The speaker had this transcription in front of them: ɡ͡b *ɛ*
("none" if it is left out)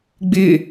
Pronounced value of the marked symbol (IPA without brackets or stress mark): ɪ